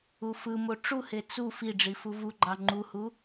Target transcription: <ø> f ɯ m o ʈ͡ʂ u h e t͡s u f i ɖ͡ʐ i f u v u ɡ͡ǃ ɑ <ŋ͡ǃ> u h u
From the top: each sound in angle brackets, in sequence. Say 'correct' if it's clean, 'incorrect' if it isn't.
incorrect, correct

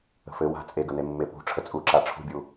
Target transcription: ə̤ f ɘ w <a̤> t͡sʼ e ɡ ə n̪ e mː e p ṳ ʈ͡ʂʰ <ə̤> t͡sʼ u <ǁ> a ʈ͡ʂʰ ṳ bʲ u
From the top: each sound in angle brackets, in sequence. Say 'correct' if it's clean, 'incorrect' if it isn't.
correct, incorrect, correct

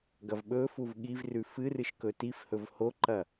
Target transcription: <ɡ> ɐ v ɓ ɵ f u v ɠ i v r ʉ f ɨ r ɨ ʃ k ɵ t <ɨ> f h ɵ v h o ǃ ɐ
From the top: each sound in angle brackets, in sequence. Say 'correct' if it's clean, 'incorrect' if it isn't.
correct, incorrect

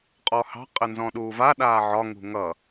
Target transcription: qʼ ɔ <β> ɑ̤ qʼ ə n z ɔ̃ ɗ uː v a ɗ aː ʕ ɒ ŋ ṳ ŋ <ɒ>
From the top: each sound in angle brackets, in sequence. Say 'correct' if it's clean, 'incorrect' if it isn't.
incorrect, incorrect

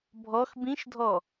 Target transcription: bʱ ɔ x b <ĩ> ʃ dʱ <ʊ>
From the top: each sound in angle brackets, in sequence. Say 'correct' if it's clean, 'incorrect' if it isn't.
correct, incorrect

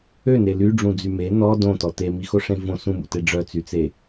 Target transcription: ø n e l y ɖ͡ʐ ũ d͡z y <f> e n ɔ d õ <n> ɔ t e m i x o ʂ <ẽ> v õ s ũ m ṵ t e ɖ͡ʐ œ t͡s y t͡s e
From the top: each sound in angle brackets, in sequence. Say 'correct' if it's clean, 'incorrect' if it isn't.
incorrect, incorrect, correct

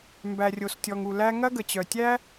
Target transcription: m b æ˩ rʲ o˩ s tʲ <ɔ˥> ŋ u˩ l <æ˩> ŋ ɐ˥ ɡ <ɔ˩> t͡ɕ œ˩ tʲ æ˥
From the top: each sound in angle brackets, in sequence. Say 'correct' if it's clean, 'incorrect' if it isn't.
incorrect, incorrect, incorrect

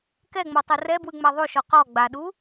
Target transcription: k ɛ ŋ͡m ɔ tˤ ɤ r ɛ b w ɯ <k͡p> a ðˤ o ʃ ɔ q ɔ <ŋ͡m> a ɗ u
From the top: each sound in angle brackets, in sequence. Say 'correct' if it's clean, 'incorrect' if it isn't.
incorrect, incorrect

